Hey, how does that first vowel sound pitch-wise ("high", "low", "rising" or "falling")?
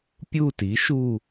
falling